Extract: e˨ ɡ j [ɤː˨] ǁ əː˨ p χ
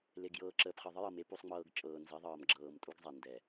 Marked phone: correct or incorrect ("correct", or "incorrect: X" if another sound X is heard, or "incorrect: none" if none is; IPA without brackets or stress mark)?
correct